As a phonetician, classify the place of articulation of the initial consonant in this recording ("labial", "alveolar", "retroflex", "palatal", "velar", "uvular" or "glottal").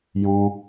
palatal